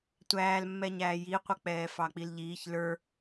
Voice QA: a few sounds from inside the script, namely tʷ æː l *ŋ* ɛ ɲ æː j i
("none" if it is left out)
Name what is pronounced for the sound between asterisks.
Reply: mː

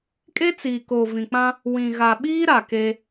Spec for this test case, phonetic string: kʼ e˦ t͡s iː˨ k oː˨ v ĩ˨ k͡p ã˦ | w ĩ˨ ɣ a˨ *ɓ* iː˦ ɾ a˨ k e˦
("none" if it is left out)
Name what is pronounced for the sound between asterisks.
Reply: ɓ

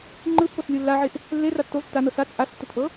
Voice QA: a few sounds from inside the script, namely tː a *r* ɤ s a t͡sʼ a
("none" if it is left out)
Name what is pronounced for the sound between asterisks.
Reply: n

